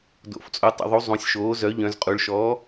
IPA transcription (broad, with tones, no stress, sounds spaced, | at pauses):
d o̰˩˧ f t͡sʼ o˩˥ tˤ ə̰˩˧ ðˤ u˩˥ zˤ ũ˩˧ sʲ ʃ oː˩˥ z œ˩˥ ʎ œ̃˩˧ z qʼ u˩˧ ɭ ʃ ɔː˩˥